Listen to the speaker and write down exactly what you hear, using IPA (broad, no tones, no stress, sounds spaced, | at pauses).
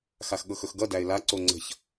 x a x ɠ ɤ x ɵ x ɡ ʌ d æ ɪ̯ l a ǀ o ŋ͡ǀ ə̤ ç